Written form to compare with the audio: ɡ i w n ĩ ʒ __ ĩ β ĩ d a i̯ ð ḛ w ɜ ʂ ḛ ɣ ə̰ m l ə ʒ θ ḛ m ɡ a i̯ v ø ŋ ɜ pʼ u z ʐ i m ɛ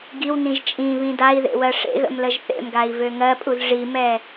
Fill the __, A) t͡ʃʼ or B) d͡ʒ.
A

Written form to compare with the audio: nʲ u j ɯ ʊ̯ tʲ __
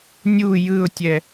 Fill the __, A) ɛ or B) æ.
A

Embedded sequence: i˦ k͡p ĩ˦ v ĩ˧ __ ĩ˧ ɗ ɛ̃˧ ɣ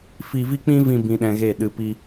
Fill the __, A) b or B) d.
A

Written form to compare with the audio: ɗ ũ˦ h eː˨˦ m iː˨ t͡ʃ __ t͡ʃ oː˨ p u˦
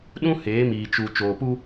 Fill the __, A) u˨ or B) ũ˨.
A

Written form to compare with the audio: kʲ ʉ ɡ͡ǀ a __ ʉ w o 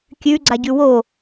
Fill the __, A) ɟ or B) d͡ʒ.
A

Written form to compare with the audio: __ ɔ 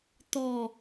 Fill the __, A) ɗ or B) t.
B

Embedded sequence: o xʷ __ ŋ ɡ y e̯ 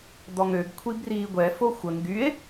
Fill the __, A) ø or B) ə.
B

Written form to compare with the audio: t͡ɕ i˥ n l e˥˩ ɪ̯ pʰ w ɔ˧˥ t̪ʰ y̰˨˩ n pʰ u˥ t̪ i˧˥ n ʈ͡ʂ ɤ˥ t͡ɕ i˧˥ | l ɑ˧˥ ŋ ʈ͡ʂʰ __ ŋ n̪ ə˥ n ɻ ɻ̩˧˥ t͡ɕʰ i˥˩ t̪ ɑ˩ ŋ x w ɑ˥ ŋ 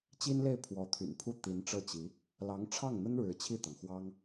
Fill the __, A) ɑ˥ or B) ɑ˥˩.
B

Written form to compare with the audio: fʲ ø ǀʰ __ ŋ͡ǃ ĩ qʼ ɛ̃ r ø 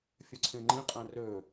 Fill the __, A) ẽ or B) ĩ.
A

